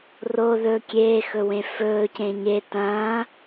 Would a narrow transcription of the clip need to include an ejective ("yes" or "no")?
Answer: no